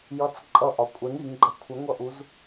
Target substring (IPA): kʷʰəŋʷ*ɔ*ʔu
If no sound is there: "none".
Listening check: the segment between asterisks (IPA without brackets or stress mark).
ʌ